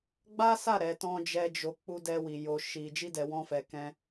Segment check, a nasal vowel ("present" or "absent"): present